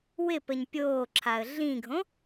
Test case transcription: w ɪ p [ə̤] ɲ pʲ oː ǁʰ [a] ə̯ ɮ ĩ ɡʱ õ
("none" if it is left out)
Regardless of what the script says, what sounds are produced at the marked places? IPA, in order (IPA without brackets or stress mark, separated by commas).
ə, a